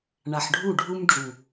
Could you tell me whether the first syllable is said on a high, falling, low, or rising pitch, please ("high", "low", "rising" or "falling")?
low